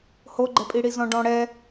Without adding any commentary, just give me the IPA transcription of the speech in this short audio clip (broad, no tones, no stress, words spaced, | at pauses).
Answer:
hoɡ͡ǃɛpʼiɽi zɔ̃ɖɔ̃ ɽɛ